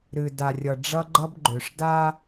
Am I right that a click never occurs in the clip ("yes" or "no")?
no